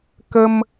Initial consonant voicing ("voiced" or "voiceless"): voiceless